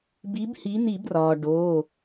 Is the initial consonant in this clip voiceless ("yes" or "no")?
no